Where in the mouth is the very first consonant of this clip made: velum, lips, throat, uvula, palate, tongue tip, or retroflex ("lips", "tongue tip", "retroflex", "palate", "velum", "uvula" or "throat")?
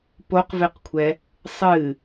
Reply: lips